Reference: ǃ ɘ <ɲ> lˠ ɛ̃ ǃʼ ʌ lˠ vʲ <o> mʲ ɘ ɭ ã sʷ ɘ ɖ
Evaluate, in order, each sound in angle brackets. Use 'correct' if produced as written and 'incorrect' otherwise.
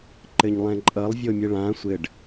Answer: correct, correct

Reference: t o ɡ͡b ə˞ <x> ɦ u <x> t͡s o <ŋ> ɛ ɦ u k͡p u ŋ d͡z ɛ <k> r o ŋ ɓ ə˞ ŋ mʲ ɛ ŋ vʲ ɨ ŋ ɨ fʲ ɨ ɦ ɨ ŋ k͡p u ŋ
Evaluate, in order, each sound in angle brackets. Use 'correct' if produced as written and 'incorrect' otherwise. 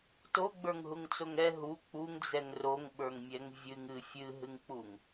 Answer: incorrect, incorrect, correct, incorrect

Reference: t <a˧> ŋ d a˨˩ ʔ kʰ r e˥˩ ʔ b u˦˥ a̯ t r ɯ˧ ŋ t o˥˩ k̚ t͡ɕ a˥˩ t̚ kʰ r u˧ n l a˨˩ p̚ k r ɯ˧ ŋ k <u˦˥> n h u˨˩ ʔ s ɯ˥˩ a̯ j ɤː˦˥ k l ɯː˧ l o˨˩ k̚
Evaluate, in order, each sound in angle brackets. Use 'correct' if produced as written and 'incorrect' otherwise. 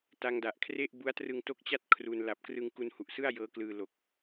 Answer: correct, incorrect

